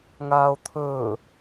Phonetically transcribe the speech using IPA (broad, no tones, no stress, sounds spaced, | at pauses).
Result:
ŋ aː o̯ t̪ʰ ɵː